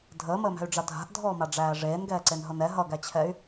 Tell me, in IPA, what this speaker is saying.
dʱəːməːmæ̤y̯ɖ͡ʐa dʱa̤ʔdʱɔːmaɖ͡ʐæː ʐeːnɡɛːǀenɦɤn ɛ ɦʌɡæt͡ɕʰɛy̯

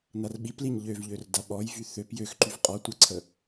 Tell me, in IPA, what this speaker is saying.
narɓipliɲ ʎøvʎør daɓɔjvy θøp jøxǃyv qʼɔ tʷəǀʰə

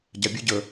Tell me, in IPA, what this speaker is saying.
ɟabʲʉ ɟə

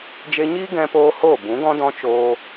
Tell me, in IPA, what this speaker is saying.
d͡ʒe˧ɲiː˦ ɡɛ̃˦poː˦hoː˦˨ bũ˨˦ɡɔ̃˦dɔ̃˦ t͡ʃoː˧

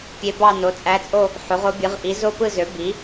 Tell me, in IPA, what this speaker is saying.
pʲe˧˥bɑ˥˧ no˩˥t͡sʼæ˧˥t͡sʼo˥˧ | ħo˩˥ʁo˧˥bʲɯ˩˥ʁ ʔi˩˥zo˥˧pɯ˥˧zø˩˥ bi˩˥

